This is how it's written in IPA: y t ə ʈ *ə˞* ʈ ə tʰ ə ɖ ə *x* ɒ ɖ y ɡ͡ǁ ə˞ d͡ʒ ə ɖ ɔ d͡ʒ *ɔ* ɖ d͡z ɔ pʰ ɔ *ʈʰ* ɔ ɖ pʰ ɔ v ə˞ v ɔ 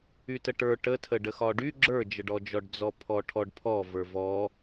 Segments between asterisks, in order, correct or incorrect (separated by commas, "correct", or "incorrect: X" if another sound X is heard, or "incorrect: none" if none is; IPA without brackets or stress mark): correct, correct, correct, correct